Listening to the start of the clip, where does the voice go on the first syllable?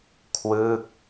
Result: falling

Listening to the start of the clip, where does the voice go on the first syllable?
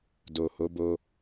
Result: low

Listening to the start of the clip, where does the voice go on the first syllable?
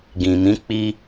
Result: low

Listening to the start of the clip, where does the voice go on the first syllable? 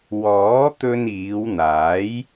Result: rising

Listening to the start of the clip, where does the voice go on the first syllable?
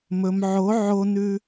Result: low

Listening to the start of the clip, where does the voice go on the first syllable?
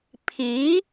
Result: rising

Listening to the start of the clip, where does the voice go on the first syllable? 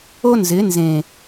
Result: high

